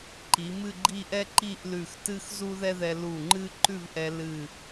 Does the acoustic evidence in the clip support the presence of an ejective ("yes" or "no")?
no